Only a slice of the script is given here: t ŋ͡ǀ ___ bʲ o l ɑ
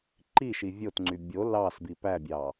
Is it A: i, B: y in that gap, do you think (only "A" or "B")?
B